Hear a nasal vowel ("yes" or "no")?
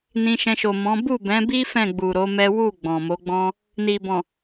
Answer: yes